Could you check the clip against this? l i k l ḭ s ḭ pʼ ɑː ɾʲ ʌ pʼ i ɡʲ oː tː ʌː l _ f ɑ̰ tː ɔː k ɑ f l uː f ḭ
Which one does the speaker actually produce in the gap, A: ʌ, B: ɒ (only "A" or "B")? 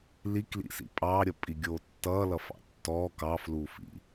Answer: A